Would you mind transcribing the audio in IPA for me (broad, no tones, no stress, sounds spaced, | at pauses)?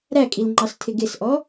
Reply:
ɾ æ kʼ i l ŋ͡ǃ ɑ s tʰ ɪ ɡ ɪ s ʔ ɔ